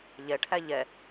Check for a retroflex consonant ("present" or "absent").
present